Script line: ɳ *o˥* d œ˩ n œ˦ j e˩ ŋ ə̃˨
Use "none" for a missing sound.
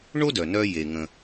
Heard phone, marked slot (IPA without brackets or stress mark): o˥